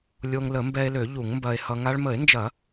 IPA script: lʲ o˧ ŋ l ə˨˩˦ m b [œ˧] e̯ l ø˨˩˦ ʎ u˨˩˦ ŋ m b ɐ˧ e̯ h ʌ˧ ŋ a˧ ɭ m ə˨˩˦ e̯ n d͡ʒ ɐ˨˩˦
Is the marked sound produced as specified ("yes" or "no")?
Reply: no